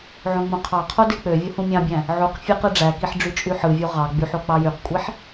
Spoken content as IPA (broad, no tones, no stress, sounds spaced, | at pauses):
ʕ õ ŋ͡m õ qʰ ɑ qʰ o d e k͡p ø vʲ o h ũ mʲ ɑ̃ bʲ æ̃ | ʕ u q fʲ e q ɯ ɖ͡ʐ æ k i ħ ɖ͡ʐ y t͡ʃʼ y ħ ɯ vʲ u ʁ ɑ ɡ͡b y ħ o k͡p ɑ j y q kʷʼ i ħ